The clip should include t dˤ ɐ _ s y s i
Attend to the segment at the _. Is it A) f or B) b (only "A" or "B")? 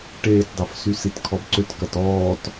A